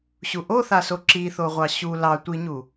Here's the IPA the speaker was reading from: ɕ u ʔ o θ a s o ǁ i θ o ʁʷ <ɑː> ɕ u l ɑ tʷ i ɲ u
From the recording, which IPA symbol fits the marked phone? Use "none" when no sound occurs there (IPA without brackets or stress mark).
ɑ